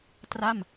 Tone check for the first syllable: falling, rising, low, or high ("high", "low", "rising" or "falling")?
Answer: falling